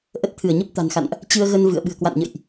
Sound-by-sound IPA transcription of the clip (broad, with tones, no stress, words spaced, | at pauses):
ʔə˦˥t̚t̪ʰɨ˧˩ə̯ɲə˦˥p̚ t̪a̤˨˩nxa̰˧˨nʔ | t͡ɕɨ˧ə̯ɣə˧n vɨ̰˧˨ə̯ ɓɨ̤˨˩ə̯kwa̰˧˨n ɲə̰˧˨jʔ